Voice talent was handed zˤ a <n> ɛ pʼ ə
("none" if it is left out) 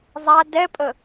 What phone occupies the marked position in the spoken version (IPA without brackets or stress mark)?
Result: d